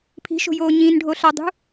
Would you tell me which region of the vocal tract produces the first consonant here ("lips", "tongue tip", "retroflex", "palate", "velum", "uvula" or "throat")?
lips